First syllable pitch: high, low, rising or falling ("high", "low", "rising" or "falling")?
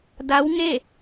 rising